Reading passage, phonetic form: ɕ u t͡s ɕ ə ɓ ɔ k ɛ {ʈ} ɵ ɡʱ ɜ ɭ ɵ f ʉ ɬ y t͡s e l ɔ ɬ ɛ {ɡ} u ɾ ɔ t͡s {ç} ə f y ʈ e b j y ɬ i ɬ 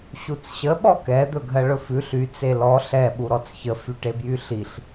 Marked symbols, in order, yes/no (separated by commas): no, no, yes